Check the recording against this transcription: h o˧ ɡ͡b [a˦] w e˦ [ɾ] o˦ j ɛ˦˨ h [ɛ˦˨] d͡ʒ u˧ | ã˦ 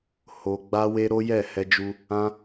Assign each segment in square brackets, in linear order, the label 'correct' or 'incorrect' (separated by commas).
correct, correct, incorrect